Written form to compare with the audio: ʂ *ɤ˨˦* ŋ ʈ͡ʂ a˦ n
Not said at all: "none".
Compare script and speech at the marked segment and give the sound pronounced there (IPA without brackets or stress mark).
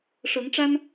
ɤ˨˦